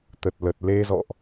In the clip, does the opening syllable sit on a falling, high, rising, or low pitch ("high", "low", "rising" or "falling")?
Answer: low